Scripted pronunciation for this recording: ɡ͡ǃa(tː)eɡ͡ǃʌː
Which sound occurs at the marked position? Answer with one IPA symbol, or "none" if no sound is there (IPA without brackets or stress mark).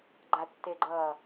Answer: tː